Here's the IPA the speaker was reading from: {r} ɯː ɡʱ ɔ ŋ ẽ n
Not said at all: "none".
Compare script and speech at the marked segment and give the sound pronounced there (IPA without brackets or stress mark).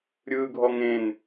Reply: ɾʲ